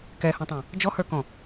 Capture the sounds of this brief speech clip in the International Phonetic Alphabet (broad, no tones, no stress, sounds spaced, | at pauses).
k ɛ h ũ tˤ ɛ̃ | d͡ʒ ɔ h ə˞ k ɔ̃